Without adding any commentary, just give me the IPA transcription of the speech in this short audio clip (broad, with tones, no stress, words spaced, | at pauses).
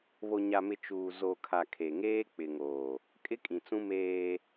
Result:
βo˨ɲa˨mɪ˨ t͡ʃuː˨ zo˨kʰa˨ kʰe˨ŋeː˦ k͡pɪ˨ ŋoː˨ | kʼɪ˦kʼĩ˨t͡sũ˦ meː˦